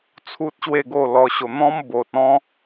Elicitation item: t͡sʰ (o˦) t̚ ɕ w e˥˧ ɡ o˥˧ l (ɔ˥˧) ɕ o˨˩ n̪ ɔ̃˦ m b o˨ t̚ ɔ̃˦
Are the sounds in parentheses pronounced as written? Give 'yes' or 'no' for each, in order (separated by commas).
no, no